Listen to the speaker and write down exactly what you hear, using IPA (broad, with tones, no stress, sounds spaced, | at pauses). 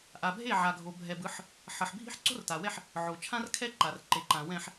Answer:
ʔ a˨ bʱ e˦˨ ʕ a˨ ɡʱ o˨ bʱ ɛ˨ b ɯ˨˦ ħ | ħ ʌ˨ ħ bʱ i̤˦ ħ ǀ o̤˦ r t a˨ w ɛ˦ ħ | ʕ o˨ t͡ʃʰ ã˦ r kʰ ɛ˦ ǃ a˨ r ǃ e˨ ǃ ã˨ w ɛ̃˨ ħ